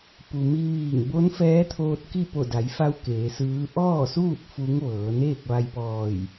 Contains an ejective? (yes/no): no